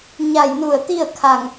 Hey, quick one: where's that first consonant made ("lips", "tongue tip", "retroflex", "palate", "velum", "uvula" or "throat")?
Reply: palate